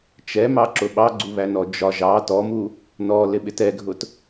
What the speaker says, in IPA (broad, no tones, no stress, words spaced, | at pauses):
t͡ʃɛmɑǁʊ ɓɑɡ͡ǀuβænɔ d͡ʒɒ ʒɑ tɔmu | nɔlɪɓɪt ɛɡʱʊt